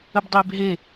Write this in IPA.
ə b dˤ ɪː b ɦ e

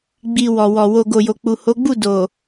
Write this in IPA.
ɡ͡b i˧ w ɔ˨ w ɔ˨ w o˧ ɡ o˨ j o˨ k͡p u˨ h o˨˦ ɡ͡b u˦˨ d o˨

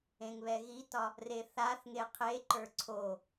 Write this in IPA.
ẽ ŋ β ɛ ɣ i t ɒ | r e θ a θ ŋ e qʰ e ǃ ə˞ ǀʰ o

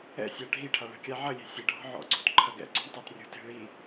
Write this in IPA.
ɛ̰ sʲ a ɖʱ i ʈʰ a ɭ ɛ̤ kʲ a ʕ ɐ lʲ e̤ sʲ ɛ ɖʱ ɔ̤ ʕ ɔ̰ ɡ͡ǀ o̤ t ǃʰ ɐ ɡ ɛ̰ ǀ o̤ ɳ tˤ a t rʲ o̤ t e̤ ɭ i

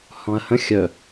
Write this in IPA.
h ɔ̃ ɐ̯ h ə̃ xʲ œ

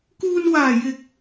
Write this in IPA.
k uː˧ n w aː˨˩ j ɪ˨˥ k̚

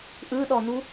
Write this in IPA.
ʔ ɯ ɗ ɔ n u

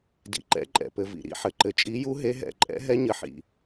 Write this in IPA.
d ḭ˩ ǃ ɛ̰˨˦ ǃʼ ɛ̰˩ p ɘ˩ v ḭ˩ ɾ ḭ˩ ħ ɘ˩ ǃ ɘ˩ t͡ʃʼ i˨˦ j u˨˦ ɦ e˨˦ ɦ ɛ̰˩ ǃʼ ɛ̰˨˦ ɦ ɛ˨˦ ɲ ɘ˩ ħ ḭ˩

